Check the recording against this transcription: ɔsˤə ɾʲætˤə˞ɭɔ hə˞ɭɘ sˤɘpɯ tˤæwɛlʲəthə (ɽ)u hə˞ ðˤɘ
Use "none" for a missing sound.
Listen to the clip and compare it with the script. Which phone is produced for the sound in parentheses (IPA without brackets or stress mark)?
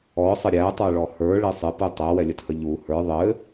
ʎ